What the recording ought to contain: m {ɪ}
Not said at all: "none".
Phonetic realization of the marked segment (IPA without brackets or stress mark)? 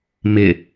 ɪ